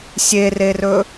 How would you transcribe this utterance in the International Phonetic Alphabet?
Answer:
sʲ e r e r ɵ

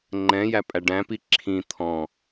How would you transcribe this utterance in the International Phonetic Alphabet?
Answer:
ŋ͡ǃ ɛ̃ j æ pʼ æ ɖ æ̃ p i ǁʰ ĩ t̪ʰ ɔ̃

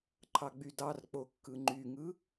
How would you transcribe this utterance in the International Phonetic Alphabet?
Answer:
ǃʰ ɑ ɡ͡b y d ɑ r k͡p o kː ɯ ŋ͡ǃ y ŋ ɯ

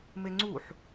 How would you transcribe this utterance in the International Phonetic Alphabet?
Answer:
m e ŋ͡ǀ u ħ

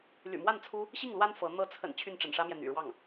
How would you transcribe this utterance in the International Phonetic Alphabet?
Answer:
l y̰˨˩ m w a˥˩ n t͡sʰ u˥ | ɕ i˥˩ ŋ l w a˥ n f ɤ˧˥ n̪ ɤ˧˥ t͡sʰ ə̰˨˩ n t͡ɕʰ y˥˩ n ʈ͡ʂ ə̰˨˩ n ʂ ä˥ m j ɛ˨ n̪ y̰˨˩ ɻ w ɑ˥˩ ŋ

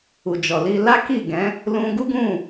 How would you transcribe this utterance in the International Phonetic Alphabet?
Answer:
u˨ d͡ʒ ɔ˨ l i˧ l a˦ k i˦˨ ɡ ɛ̃˨˦ | l ũ˧ ɡ u˦ ɡ ũ˦˨

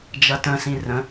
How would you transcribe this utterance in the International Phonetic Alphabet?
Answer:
d͡ʒ ɐ t ə̃ s ĩ r ə̃

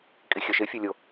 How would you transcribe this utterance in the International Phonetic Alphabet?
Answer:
kʼ i xʲ œ ʃ ɪ fʲ o lʲ o

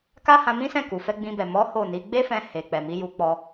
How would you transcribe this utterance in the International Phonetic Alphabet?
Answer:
k a˦ h ã˧ m ĩ˦ s ɛ̃˦˨ k u˨ f ɛ˧ ɡ͡b ĩ˧ b ɛ˨ m ɔ˨˦ h o˦˨ n i˨˦ ɡ͡b e˦ f ɛ̃˧ h e˨ k͡p ɛ˨ m i˨˦ j u˧ k͡p ɔ˧

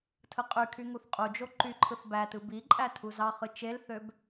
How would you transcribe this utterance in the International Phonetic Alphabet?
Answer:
tʰ ɯ qʼ y kʰ y ŋ u θ qʼ u d͡ʒ o ǃ y ǃʰ ɯ θ b æ t ɯ b i ǃʼ æ tʰ u z ɑ χ ɯ t͡ʃ e l θ ø b

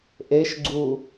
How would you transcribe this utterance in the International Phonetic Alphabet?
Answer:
ʔ e ʃ ɡ͡ǀ u

